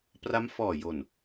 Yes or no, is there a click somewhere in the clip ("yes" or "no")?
no